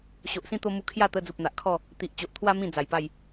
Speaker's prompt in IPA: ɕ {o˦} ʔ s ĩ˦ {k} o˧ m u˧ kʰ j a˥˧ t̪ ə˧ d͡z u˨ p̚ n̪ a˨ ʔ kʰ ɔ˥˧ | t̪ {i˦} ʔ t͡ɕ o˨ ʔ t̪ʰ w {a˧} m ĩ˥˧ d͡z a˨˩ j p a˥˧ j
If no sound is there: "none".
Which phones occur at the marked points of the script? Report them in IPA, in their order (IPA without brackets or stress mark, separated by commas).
o˨, t̪, i˨, a˦